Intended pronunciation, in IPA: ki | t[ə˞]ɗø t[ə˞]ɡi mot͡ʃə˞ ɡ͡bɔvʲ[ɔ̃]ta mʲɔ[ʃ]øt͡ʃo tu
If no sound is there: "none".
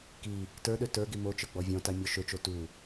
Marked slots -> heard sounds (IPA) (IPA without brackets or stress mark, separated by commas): ə˞, ə˞, ɔ̃, ʃ